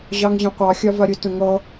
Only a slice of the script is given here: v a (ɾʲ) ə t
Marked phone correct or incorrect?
correct